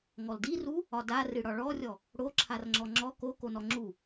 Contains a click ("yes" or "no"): yes